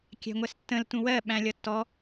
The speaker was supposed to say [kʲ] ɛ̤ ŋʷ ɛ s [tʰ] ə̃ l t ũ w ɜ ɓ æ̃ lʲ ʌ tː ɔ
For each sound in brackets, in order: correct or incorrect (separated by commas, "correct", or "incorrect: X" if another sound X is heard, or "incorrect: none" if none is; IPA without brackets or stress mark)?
correct, incorrect: tː